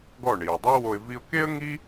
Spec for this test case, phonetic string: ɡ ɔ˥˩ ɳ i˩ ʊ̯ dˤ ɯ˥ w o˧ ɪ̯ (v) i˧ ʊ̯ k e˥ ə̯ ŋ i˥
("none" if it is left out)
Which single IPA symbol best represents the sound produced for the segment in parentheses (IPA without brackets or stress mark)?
v